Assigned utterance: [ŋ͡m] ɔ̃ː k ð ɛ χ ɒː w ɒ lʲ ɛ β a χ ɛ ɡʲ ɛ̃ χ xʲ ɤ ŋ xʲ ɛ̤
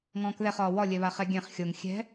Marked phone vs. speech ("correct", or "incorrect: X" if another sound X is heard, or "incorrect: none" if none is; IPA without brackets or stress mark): incorrect: ŋ